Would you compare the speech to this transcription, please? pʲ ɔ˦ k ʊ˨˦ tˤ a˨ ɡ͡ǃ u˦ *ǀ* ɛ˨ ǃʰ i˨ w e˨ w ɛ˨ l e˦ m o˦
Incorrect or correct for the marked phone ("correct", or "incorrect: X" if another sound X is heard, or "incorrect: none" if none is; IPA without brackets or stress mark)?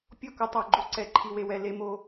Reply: correct